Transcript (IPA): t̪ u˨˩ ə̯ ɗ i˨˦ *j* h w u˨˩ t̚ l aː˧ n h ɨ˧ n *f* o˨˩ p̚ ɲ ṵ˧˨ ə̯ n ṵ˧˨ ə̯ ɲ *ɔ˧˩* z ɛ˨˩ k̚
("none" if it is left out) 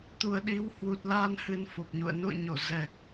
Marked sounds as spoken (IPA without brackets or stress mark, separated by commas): w, f, o˧˩